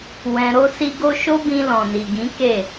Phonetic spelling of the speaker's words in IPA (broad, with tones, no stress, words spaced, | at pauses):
wɛ̃˧ ɾo˦si˦ɡo˦ ʃo˦bĩ˧ lɔ̃˨ni˨ɡĩ˨˦ ke˦˨